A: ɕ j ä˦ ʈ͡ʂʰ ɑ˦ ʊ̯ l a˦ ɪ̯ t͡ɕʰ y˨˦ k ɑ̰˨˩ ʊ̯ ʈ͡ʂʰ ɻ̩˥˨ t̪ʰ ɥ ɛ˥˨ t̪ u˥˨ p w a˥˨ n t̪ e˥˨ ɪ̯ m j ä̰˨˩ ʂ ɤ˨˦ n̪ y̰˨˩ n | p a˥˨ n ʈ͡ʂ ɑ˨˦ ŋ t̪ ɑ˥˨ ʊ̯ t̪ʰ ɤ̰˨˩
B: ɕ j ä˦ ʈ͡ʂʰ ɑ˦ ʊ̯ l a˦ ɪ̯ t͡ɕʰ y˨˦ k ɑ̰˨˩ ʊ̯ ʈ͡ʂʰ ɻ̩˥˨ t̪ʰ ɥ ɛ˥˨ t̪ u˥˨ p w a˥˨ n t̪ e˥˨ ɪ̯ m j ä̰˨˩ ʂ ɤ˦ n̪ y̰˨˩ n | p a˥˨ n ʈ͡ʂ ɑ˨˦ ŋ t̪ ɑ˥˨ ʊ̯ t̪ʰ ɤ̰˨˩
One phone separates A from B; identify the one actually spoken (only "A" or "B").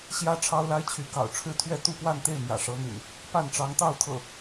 A